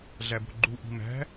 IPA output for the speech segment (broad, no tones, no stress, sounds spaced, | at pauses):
ɮ æ b o̤ ɡ͡ǃ u ʔ i̤ m æ̤